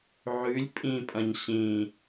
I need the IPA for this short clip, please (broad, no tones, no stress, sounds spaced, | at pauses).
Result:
ʕ ʉ lʲ pʼ ĩ pʼ ɐ̃ ɲ ɕ ĩ